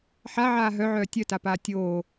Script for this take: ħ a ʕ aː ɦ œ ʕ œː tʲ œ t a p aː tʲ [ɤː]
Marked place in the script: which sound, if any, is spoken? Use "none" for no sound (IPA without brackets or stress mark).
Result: oː